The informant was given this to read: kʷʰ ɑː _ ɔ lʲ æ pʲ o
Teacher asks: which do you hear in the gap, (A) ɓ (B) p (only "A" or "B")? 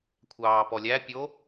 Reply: B